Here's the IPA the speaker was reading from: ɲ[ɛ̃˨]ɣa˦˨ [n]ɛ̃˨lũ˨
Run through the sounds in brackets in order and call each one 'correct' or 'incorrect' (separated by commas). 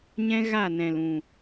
incorrect, correct